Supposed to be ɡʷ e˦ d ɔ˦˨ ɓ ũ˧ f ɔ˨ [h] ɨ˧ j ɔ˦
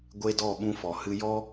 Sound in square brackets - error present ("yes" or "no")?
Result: no